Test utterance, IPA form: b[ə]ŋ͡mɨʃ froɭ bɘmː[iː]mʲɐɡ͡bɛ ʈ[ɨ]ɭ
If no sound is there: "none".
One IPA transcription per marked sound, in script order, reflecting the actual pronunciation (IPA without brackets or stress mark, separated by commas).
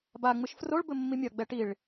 a, i, i